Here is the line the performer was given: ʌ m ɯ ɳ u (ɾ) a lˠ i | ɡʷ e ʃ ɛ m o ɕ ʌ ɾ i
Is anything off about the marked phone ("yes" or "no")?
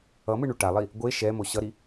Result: yes